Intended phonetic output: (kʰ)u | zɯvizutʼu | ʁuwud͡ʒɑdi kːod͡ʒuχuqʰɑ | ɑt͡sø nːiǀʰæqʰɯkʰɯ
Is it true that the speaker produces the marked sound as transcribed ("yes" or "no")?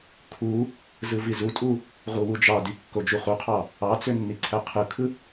yes